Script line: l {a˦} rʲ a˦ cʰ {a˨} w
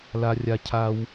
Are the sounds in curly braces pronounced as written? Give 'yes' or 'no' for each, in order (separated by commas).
yes, no